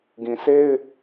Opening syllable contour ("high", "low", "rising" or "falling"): low